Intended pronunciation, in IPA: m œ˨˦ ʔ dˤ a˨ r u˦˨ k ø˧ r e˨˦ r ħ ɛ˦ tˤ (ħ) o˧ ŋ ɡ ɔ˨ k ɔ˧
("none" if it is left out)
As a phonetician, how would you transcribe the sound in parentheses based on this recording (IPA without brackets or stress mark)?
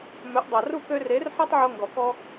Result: ʕ